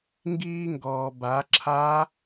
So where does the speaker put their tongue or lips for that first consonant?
velum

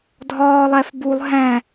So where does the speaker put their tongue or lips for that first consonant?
tongue tip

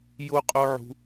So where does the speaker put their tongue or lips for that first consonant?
palate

